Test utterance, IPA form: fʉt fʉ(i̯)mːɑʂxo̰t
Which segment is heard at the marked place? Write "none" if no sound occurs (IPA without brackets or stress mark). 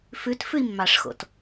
i̯